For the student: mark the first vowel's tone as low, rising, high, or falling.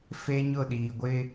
high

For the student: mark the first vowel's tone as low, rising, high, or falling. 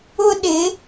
high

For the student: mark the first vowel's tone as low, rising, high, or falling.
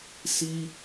high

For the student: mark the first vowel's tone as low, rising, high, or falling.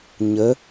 rising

